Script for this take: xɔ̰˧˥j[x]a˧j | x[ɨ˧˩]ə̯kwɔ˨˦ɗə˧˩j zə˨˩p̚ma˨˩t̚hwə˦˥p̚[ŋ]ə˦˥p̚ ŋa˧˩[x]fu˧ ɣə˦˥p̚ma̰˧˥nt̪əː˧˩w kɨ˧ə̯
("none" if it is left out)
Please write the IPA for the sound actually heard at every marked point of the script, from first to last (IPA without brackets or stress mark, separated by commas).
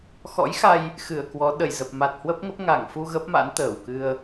x, ɨ˧˩, ŋ, ŋ